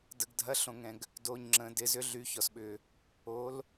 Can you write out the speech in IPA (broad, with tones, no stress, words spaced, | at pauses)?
də˨ɡdʱɐ˨˦ɬõ˨ŋɛ̃˨ɡ | do˨ɲ ŋ͡ǁə̃˨dɪ˨˦ zʏ˨˦ɮy˨˦ çɔ˨sɓʏ˨ | o˨˦l